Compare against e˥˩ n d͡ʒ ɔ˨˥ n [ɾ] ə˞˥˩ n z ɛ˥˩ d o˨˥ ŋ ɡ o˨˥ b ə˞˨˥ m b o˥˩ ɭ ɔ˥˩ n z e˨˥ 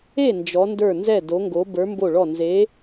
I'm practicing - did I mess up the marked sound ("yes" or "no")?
yes